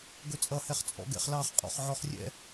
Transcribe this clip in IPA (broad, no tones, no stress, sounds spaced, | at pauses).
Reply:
ɡ ɵ t͡sʼ ʌ h ɛ χ t͡sʼ ɔ̰ ɡ ɛ̰ χ l ɑ χ qʼ ɔ̰ χ ʕ ɔ χ rʲ ɛ̰